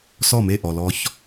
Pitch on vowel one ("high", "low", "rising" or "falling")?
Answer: falling